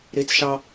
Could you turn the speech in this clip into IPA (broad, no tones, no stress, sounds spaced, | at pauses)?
ɾ i t͡s ʃ ɑ